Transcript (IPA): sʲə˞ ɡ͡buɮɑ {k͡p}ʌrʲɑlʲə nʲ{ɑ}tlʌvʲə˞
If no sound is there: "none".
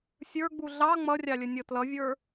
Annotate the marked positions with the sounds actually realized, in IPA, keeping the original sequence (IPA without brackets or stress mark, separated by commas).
ŋ͡m, ʌ